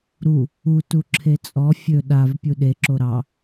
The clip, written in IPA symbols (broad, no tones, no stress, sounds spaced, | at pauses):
ɾ u | u t u ǁʰ e t͡sʼ ɔ fʲ ɵ ɗ a v pʲ u ɗ e ǁ o ɾ ɑ